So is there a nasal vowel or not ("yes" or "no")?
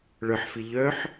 no